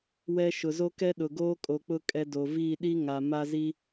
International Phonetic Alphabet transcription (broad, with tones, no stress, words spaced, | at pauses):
wɛ˦ ʃʊ˨zo˦kɛ˦ ɗʊ˨ɡoː˦kʼo˨k͡pʊ˦ kʼɛ˦do˨ viː˦˨ɗi˦ ŋa˨ ma˦zi˦